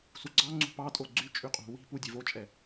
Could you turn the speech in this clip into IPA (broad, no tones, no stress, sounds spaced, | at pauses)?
s u ɡ͡ǀ ɑ ŋ͡ǀ ṳ p ɑ tʼ o ɡ͡ǀ y t͡ʃʼ y qʼ ṳ w i̤ p u dʲ e v o t͡ʃʼ ɛ